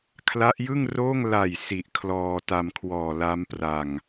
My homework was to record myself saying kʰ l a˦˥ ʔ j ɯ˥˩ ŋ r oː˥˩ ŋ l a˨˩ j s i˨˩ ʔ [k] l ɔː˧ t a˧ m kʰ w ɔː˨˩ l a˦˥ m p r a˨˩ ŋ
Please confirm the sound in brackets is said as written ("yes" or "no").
no